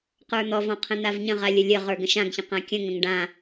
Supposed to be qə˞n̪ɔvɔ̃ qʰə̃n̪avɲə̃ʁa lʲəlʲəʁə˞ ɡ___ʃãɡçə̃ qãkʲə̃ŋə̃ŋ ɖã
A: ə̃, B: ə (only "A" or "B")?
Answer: A